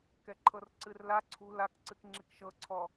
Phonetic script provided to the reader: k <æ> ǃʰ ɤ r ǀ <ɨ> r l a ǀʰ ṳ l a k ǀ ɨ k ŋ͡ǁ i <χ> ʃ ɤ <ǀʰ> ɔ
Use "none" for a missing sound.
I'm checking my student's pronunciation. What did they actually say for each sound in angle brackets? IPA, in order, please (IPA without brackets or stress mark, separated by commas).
ɛ, ɨ, k, ǀʰ